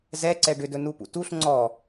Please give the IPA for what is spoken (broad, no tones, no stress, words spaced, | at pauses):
zɛ ǀɛɖʏdɵ nupṵtuɬ ŋ͡ǀɔ